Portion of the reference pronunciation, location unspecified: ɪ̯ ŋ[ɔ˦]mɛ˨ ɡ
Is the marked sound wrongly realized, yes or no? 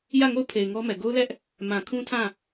no